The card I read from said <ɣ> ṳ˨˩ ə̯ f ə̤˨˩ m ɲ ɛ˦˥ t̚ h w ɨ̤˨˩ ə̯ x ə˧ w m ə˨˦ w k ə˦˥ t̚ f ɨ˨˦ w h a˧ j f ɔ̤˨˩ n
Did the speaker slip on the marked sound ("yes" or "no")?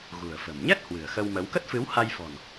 no